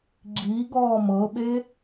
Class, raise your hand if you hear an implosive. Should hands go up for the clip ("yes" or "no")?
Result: yes